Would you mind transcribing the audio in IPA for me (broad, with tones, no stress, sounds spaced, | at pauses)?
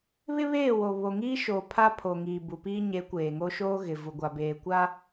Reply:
β ɪ˦ β eː˦˨ w o˨ β o˨ ŋ iː˦ ʃ oː˨ pʰ a˦ pʰ o˨ ŋ iː˨ b u˨ p iː˦ ɲ e˨˦ kʷ eː˨ ŋ o˦ ʃ oː˦ ɣ ɪ˨ v u˨ ɡʷ a˨ b eː˨ kʷ a˦